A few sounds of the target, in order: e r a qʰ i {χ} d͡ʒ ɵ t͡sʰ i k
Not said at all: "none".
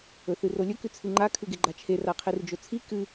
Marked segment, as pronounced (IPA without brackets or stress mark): r